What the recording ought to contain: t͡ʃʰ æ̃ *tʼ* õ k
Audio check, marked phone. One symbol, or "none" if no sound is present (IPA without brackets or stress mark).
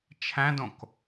d